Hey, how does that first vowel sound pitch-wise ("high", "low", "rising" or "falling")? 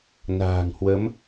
low